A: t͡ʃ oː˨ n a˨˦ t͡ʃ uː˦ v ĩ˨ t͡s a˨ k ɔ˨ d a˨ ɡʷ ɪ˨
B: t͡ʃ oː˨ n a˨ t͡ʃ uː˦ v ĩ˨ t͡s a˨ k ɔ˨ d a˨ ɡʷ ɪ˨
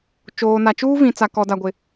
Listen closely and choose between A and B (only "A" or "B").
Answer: B